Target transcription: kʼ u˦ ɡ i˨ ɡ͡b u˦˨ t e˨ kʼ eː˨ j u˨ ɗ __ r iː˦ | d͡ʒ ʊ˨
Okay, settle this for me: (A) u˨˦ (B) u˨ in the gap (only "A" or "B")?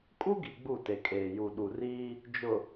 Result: B